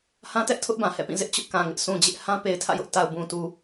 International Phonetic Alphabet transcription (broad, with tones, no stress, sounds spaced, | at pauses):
h ã˦ t ɛ˦ ʔ tʰ ʊ˦ ʔ b ã˨ h ɛ̰˦˨ p ĩ˦˨ z ɪ˦ ʔ t͡ɕ ʊ˦ ʔ k ã˨ ŋ ɪ˦ ʔ s ũ˨ d͡ʑ ɪ˦ ʔ h ã˦ p e˨ ɪ̯ tʰ ä̰˦˨ j ʊ˦ ʔ t a˨ ʊ̯ b ũ˨ t u˨